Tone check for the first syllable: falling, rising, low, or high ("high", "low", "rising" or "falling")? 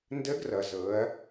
rising